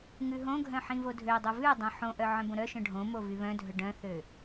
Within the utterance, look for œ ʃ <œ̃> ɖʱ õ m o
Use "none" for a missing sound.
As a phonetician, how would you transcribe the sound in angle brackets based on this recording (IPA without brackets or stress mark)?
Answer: œ̃